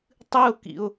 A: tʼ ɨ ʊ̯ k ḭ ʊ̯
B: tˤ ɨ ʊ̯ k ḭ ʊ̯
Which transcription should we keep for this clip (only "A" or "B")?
B